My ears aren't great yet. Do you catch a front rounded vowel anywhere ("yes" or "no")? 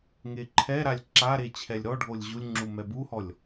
no